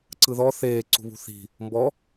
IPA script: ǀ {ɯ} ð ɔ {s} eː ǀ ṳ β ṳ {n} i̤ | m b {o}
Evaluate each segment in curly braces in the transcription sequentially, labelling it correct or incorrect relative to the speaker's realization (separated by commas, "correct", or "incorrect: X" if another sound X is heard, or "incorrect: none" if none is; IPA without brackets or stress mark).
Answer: correct, incorrect: θ, incorrect: θ, incorrect: ɔ